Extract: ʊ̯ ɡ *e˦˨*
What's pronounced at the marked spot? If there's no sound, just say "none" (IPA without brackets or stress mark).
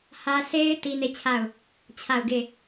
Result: e˦˨